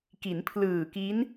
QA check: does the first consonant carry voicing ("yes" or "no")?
no